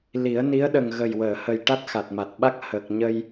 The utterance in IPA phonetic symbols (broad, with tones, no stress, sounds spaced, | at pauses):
l i˨˩˦ ə̯ n i˧˥ ə̯ ɗ ə˨˩ ŋ ɣ ə˨˩ j w əː˨˩˨ h ə˨˩ j ʈ a˦˥ t̚ x a˨˩ t̚ m a˨˩ t̚ ɓ a˦˥ k̚ h əː˨˩ k̚ ɲ ə˧ j